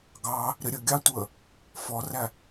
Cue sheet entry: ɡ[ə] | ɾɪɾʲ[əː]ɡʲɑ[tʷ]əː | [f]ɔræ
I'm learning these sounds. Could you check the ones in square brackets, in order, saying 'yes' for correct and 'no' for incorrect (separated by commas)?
no, no, yes, yes